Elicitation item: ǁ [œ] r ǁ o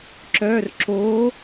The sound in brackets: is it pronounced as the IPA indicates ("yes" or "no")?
yes